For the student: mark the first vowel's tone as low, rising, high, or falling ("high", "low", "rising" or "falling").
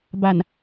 low